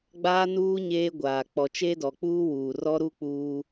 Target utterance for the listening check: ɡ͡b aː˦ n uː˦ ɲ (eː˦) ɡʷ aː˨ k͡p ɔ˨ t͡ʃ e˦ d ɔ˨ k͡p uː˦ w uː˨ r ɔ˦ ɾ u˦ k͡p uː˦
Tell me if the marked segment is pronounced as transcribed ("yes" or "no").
yes